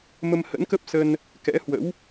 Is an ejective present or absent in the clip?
absent